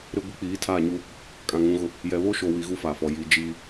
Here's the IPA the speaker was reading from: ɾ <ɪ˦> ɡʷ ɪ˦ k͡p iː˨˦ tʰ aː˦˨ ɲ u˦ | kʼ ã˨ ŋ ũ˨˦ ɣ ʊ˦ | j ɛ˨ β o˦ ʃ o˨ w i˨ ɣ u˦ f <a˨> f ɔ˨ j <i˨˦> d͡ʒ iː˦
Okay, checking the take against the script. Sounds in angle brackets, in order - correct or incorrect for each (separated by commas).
correct, correct, correct